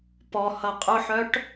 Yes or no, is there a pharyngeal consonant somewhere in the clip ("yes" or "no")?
yes